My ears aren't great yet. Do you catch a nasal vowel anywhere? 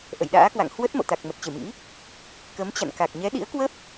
no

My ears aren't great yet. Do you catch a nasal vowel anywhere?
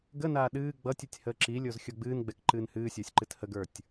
no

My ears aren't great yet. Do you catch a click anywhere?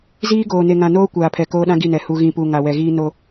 no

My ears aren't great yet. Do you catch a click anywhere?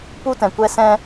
no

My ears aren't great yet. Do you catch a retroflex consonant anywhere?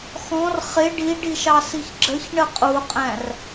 yes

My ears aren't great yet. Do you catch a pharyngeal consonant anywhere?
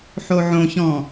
yes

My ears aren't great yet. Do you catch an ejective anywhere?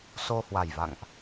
no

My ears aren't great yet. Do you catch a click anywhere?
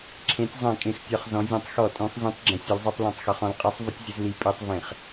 yes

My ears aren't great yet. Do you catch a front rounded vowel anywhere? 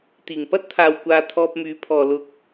yes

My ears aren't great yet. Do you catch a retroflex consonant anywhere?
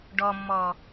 yes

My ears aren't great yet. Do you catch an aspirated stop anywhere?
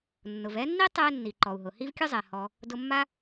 no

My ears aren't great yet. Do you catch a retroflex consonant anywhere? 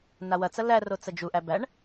yes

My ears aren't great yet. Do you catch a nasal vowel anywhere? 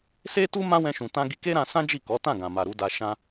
yes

